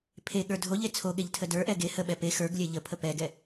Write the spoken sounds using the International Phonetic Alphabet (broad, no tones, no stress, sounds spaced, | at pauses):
pʰ e ɠ ə˞ dʱ o ʎ e t͡sʰ o ɠ e ʎ tʰ ə d ə˞ ʔ ɛ ɡ e h ə ɓ ɛ p e x ə˞ ɡ lʲ ɛ ʎ ə pʰ ə p ɛ ɡ ɛ